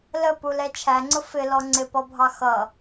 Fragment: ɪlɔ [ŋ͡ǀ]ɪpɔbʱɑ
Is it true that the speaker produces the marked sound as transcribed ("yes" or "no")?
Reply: yes